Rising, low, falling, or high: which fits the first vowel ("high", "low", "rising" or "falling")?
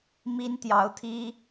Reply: high